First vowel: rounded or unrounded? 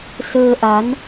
unrounded